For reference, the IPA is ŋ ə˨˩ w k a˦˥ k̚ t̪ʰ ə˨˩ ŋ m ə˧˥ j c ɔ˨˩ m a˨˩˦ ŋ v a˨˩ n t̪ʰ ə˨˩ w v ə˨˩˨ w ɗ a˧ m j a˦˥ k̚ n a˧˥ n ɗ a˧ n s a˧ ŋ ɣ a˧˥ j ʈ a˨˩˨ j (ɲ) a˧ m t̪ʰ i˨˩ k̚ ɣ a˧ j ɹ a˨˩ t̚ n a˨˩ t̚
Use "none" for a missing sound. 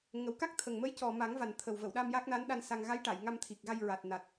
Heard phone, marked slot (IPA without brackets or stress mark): ŋ